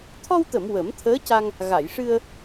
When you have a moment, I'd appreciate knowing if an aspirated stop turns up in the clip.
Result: yes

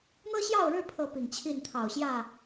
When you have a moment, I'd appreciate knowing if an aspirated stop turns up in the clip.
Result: yes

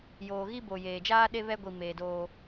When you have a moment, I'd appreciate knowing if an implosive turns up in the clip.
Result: yes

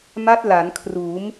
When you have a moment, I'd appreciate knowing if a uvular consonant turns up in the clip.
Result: no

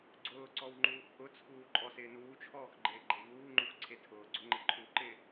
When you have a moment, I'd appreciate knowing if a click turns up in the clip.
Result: yes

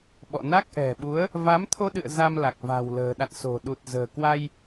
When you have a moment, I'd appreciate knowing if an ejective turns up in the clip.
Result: no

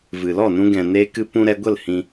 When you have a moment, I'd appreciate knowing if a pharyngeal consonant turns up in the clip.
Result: no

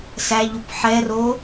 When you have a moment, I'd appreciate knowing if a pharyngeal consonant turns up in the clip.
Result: yes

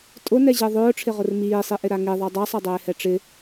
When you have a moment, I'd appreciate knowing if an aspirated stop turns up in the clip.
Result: yes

